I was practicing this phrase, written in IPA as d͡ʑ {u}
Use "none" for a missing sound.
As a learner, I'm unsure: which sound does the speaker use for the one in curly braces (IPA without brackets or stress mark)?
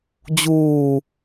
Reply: uː